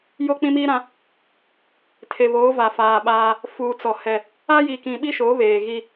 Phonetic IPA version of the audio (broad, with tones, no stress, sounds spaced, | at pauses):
j o˦ k͡p ĩ˦ m iː˦ ɾ ã˦ | tʰ e˨ β oː˨˦ v a˨ f aː˨ ɓ aː˦ | f uː˨ t͡s ɔ˨ h ɛ˦ | a˦ j i˨ k ĩ˨ ɓ i˦ ʃ oː˨˦ β eː˨ ɣ i˦